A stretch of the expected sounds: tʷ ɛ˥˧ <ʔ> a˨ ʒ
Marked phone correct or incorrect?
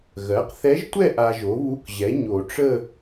correct